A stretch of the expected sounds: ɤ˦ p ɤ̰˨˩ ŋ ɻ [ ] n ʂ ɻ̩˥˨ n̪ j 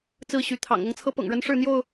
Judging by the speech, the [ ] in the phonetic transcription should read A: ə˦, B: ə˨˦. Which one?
A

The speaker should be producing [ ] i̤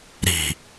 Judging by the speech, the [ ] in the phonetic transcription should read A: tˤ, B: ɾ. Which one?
B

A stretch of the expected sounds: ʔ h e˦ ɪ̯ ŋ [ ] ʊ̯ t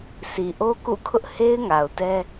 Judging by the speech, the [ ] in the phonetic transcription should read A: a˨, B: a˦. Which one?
A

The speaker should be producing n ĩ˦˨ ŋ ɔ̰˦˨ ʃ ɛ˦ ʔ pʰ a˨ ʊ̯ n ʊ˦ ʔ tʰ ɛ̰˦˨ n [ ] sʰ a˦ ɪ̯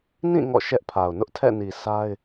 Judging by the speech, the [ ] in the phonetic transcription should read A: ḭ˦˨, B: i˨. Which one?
B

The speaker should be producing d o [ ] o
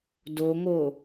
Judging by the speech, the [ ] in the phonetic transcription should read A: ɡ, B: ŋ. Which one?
B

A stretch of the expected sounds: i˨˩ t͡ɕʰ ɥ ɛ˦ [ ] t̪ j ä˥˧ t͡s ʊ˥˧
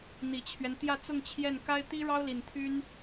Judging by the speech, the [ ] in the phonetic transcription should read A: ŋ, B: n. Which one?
B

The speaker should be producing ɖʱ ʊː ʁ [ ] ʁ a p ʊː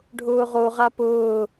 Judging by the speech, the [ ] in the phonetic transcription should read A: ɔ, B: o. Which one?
B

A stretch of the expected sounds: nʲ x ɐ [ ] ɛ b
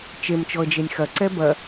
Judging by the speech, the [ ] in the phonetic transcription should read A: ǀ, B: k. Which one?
A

